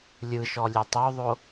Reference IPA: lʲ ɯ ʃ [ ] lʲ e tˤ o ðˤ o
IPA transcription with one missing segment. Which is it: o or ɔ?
ɔ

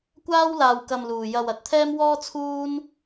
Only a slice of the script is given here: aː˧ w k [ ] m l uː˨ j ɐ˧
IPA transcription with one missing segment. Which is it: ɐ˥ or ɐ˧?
ɐ˧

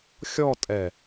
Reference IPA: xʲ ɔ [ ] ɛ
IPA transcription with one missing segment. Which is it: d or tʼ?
tʼ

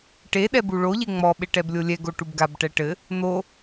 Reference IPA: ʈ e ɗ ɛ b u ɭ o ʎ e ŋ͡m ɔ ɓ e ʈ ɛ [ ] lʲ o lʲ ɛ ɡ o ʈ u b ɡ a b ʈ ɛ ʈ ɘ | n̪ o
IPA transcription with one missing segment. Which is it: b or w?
b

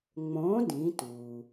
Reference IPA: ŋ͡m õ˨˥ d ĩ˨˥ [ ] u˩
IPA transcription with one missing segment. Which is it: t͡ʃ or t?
t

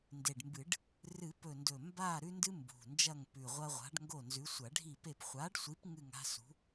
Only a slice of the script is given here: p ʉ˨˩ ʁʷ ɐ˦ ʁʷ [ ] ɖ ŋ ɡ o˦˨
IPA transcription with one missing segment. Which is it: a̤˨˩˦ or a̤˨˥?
a̤˨˥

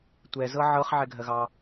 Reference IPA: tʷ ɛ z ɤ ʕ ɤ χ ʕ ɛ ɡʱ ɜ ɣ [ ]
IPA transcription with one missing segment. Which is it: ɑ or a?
ɑ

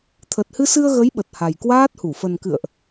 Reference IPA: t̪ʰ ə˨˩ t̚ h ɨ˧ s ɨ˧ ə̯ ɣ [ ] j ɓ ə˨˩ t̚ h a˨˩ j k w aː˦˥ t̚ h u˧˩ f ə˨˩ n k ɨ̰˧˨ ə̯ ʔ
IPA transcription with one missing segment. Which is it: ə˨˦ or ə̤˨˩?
ə˨˦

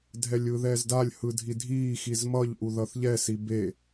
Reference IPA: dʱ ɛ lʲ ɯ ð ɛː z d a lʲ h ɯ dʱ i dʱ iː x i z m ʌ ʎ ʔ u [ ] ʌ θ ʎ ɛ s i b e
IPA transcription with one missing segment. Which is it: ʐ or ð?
ð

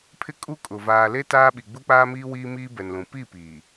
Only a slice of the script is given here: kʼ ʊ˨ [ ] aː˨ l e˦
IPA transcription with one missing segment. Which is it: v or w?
v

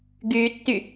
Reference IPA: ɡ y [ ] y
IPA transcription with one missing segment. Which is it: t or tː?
tː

